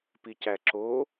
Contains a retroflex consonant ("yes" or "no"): no